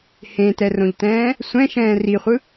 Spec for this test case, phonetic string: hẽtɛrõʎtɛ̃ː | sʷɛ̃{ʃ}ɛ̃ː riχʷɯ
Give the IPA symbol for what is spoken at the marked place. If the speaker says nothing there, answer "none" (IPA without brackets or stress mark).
ʃ